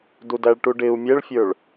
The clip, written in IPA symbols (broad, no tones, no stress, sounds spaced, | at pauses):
d u d æ ɭ ʈ u ɖ ɪ u̯ mʲ ɛ ɭ fʲ ə˞ ɭ